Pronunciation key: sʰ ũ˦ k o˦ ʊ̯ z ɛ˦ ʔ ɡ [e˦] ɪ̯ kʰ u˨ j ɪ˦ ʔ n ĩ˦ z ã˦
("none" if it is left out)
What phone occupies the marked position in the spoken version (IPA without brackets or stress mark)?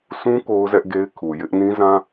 e˦